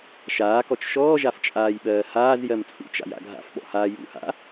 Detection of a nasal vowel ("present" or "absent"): absent